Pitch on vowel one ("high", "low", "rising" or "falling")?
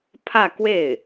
falling